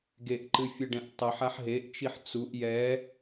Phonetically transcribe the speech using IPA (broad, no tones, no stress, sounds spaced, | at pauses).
ɡ e ʔ ǃ ɨ fʲ ɘ ɖ ɛ̃ ʔ tˤ ɨ ħ a ħ ɦ e ʔ t͡ʃ i ħ t͡s u ʔ j ɛ